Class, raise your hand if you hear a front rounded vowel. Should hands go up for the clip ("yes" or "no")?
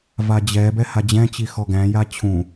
no